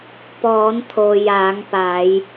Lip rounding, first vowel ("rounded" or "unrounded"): rounded